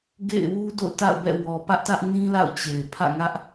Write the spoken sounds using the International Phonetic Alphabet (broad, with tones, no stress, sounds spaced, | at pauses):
ɡ ḛ˦˨ ɪ̯ w u˦ d o̰˦˨ ʊ̯ t a̰˦˨ ʊ̯ b ɛ̰˦˨ w ɔ˨ p ä˦ ʔ t ä˦ ʔ n ĩ˦ l a̰˦˨ ʊ̯ t͡ɕ e˨ ɪ̯ pʰ ä̰˦˨ ŋ ä˦ ʔ